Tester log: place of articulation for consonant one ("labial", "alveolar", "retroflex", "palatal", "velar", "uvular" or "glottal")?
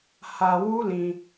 glottal